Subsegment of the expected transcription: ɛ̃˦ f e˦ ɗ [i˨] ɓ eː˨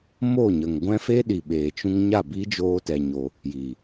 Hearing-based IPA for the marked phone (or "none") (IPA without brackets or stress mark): i˨